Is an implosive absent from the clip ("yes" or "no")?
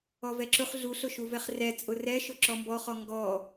yes